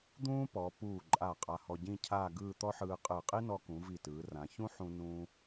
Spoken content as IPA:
d̪ ũː˥ p ɔ˩˧ p uː˧˩ ǃʼ a˧˩ qʼ a˧ h ɔ˧ ɟ ĩ˥˧ cʰ aː˥˧ ɡ ɯː˥˧ t̪ ɔ˥ ħ ɯː˧ qʼ ɯː˧˩ qʼ i˥ n ɔ˧ k ũ˩˧ v i˧˩ t ɯː˩˧ r ã˩˧ ç ũ˥ ħ ũ˧ n ũː˧

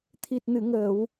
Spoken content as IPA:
t̪ʰ i˨˩ t̚ n ɨ˨˩˨ ŋ əː˨˩˨ w

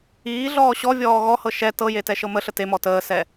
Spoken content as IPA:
iː ɮ ɔː ɕ ɔ vʲ ɔː ɣ ɔ h ɤ ʃ ɛ t ɤ j e t ɛ ʃ ɤ m ə ɬ ə t e m ɔ t əː s ɛ

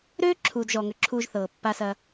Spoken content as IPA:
ɾ øː˦ ǁʰ uː˨ d ʒ ɔ˨ ŋ ø˨ ǁʰ uː˧ ʒ θ ɤː˨ pː a˧ s ɐ˧

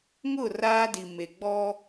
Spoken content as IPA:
ŋ ʊ˦˨ r aː˦ d i˨ m e˨ ɡ͡b ɔ˦

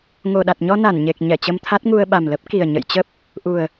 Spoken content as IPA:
ŋ o˨˩ ɗ a˨˩ t̚ ɲ ɔ˧ n a˧˩ n ɲ e˨˩ k̚ ɲ ɛ˧˩ t͡ɕ ə˧ m t̪ʰ a˦˥ t̚ ŋ u˧ ə̯ ɓ a˨˩ m l ə˦˥ p̚ k i˨˩ ə̯ ɲ ə̰˧˨ j t͡ɕ ə˦˥ p̚ | ʔ u˨˩ ə̯

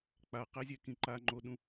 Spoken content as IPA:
k͡p a q ɛ zʲ ɛ k ĩ ǃ a ŋ͡ǃ o ɗ ũ

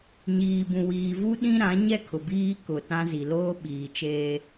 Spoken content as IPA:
ɲ iː˨ b ũ˨ w iː˨ v u˦ ɗ ĩ˦ ɾ ã˨˦ ɲ ɛ˦ kʰ ʊ˨ b iː˦ k ʊ˨ t ã˦ z i˨ l oː˦ ɓ iː˨ t͡ʃ eː˦

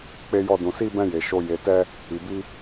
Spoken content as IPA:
k͡p e˧ j ɔ˧ d ũ˨ s i˧ b ɛ̃˧ j e˨ ʃ o˧ j e˨ t ɛ˧ | i˨ b i˧

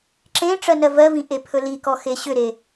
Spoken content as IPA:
ǁ ẽ ʈ͡ʂ ɜ n ɜ v ɜ v ĩ ʔ e pʰ ɵ l i k ɔ x e ɕ ʏ ɾ e

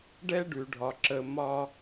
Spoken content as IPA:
ɖ ɛ˦ ɖ ʉ˨ ɖʱ ɒ˨ ǁ ə˨ m ɒ˦

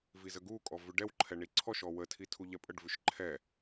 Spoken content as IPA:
v i z ə ɡ u kʼ ɔ v ʉ ɖ ɛ w ǃʰ ɛ ɳ i ǀʰ ɔ ʃ ɔ w ə tʰ i tʰ u ʎ ɛ pʼ ə ɖ v ʉ ʃ ǃʰ ɛ

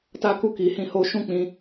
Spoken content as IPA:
t a˧ k u˧ k i˨ h ĩ˨˦ h o˧ ʃ ũ˦ k͡p ĩ˧

